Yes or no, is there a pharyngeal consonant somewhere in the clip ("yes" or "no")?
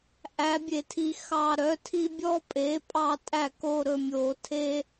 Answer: no